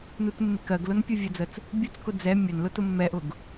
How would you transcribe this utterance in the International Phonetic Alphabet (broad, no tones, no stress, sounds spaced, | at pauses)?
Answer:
n u t mː ɪ k ɜ ɡ l ʊ n pʲ u vʲ ə d͡z ə t͡s | bʲ u t͡s k ʊ d͡z ɛ mʲ ə n l ʊ t ʊ mː ɛ ʔ ʊ ɡ